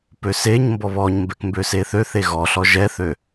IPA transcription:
p ø s e ɲ m b ɔ β ɔ ɲ m b ɛ k m b ø s e θ ø θ e ɣ ɔ ɬ ɔ ʒ ɛ θ ø

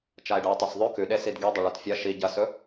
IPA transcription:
t͡ʃ a e̯ ɖ ɐ e̯ tˤ e s ðˤ ʉ k ʉ ɗ e s i d ɡ e dˤ ɐ ɭ o t fʲ ɐ ʃ i ɟ ɐ s ɵ

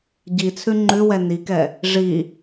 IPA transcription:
ɟ i t͡sʰ ʉ ŋ͡ǃ ʉ w ɛ n i k ɛ | ʐ i

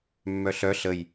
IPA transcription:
mː œ ɬ œ ɬ ə j

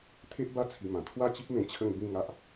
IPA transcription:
t̪ʰ e˦ ʔ b a˦ t͡sʰ i˧ m ã˨˩ t̪ʰ w a˥˧ t͡ɕ i˦ p̚ m ẽ˧ t͡ɕʰ ə˥˧ ŋ b ĩ˥˧ ŋ a˦ ʔ

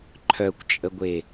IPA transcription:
ǃʰ œ kʷ t͡ʃʼ ə ɡʷ e

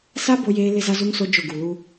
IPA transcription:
s a˦ b o˦ j eː˦ l ɪ˦ z a˦ z u˦ ŋ s o˦ d͡ʒ ʊ˦˨ ɡ u˨ l u˦

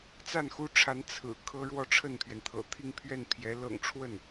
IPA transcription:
t͡s a˥˩ n x u˥ ʈ͡ʂʰ a˧˥ n t͡sʰ ɹ̩˨˩ kʰ ɤ˥ ɻ w ɔ˥˧ ʈ͡ʂʰ ə˥˩ n pʰ ɥ ɛ˩ n t̪ʰ ɤ̰˨˩ t̪ʰ i˥˧ ŋ pʰ ɥ ɛ˥˩ n pʰ j ɛ˧˥ l ɤ̰˨˩ ŋ ʈ͡ʂʰ w ə˥˩ n

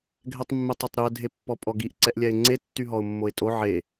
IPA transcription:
ɡʱ ɛ tˤ mː e tˤ o tˤ ɾ y ə̯ dʱ e pː ɔ pʼ ɔ ɡ i ʔ ǀ ɛ ʔ lʲ ɛ ɪ̯ ŋ͡ǀ e tː y ɦ ɔ ʊ̯ mː o ɪ̯ tʼ o ʕ e

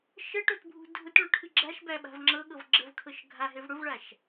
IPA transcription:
ʃ ə ʈ o t bʱ ṳ dʱ ʊ t ɭ o ʈʰ ɨ ɡ͡ǁ a ʃ b æ ɓ a̤ v ŋ͡ǁ ɤ ɠ ɤ v ɡ͡ǁ ə v kʰ ɤ ʃ ɡʱ a ɦ e v ɽ ʊ v ɭ a ʃ

